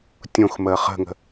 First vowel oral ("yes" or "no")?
no